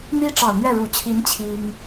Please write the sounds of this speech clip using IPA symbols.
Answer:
n̪i˥ʈ͡ʂɑ˨˩ʊ̯n̪ɥɛ˥˩ ɻu˨˩t͡ɕʰi˧˥n t͡ɕʰi˥ŋ

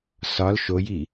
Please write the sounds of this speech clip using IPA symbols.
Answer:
sɒl ʃoji

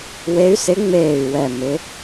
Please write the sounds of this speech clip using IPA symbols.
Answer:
we˧˥y̯sɪ˧˥ ŋ͡meː˧˩y̯ wɛ˧˩ mɪ˧˥

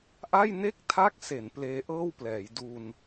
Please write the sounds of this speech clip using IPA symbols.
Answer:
ʔa˥˩j ne˥˩k̚tʰa˦˥k̚se˩˦n pleː˦˥ʔɤː˥˩wplɛː˩˦j du˧n

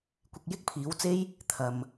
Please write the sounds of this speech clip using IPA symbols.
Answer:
kʷɪ˨k̚ jɪ˥k̚pʰiː˨˥wt͡se˥j | t̪ʰɐ˨m

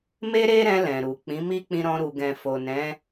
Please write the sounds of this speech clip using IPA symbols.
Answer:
me˦ɾe˦ɾɛ̃˧ lɛ̃˨ɾu˨ k͡pĩ˨˦mi˦k͡pĩ˧ɾɔ̃˧ ɾu˨ɡɛ̃˨ fo˨nɛ̃˨˦

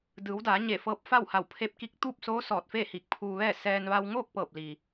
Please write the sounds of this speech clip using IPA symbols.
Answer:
dɯː˩˧wdaː˩˧ ɲe˧˩fɤː˧p̚ fa˥˨wha˧˩wpʰe˧˥p̚ki˧˥k̚ t̪uː˥˨p̚soː˧˥ sɔː˧˩t̚feː˥˨hi˧˩k̚ pʰuː˧ʋɛː˥˨ sɛː˧n ʋa˧wŋoː˥˨k̚ pɤː˧˩p̚ li˩

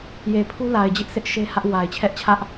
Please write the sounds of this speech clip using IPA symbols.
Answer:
je˨pʰu˦ la˨ɪ̯ d͡ʑɪ˦ʔsʰɪ˦ʔ ʃe˦hä˦ʔ wa˨ɪ̯t͡ɕʰɛ˦ʔt͡ɕʰä˦ʔ

